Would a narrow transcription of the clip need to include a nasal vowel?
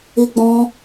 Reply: yes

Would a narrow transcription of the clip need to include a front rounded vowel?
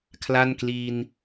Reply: no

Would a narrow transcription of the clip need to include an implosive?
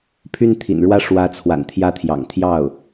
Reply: no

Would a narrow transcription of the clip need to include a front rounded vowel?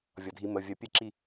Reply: yes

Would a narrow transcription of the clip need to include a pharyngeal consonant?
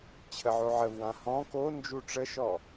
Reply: yes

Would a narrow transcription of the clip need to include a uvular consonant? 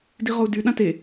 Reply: yes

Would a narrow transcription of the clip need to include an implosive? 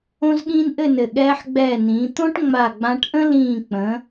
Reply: yes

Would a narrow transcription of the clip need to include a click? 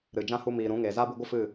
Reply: no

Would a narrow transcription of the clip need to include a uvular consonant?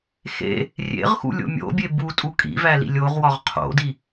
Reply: yes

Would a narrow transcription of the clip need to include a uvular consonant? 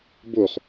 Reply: yes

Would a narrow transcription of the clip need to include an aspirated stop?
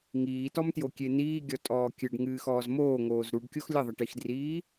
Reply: no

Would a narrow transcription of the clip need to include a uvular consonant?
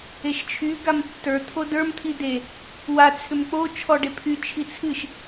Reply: no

